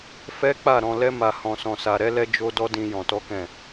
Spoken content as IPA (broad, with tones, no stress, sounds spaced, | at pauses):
f ɛ˦ k͡p a˦˨ ɾ ɔ̃˧ l ɛ˦ m a˧ h ɔ̃˧ s ɔ̃˧ s a˧ ɾ ɛ˦ l ɛ˦ d͡ʒ o˦ d ɔ˦ d ĩ˦ j ɔ̃˧ t ɔ˦ k ɛ̃˦˨